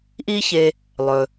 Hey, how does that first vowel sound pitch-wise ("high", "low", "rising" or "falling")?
high